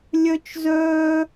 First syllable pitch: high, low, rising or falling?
high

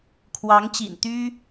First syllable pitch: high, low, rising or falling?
rising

